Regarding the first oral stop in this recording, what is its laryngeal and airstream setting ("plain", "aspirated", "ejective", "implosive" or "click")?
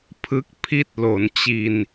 aspirated